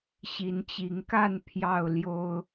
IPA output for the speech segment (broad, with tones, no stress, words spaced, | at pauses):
ɕi˨˦nt͡ɕi˨˦ŋka˥˨n pʰjɑ˥˨ʊ̯ljo˦ʊ̯